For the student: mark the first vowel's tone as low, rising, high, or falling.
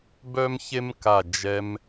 high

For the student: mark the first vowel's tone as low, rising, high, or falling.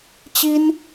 high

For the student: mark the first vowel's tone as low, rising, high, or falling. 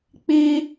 high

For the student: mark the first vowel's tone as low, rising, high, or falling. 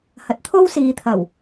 low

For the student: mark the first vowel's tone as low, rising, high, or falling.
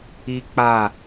high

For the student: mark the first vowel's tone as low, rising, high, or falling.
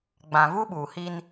low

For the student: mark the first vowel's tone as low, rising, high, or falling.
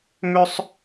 high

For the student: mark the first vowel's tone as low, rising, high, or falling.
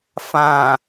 low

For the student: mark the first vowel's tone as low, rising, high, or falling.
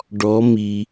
rising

